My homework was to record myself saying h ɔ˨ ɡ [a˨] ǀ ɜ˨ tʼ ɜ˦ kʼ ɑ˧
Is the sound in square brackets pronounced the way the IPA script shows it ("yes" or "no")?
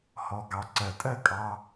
no